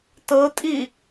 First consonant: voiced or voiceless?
voiceless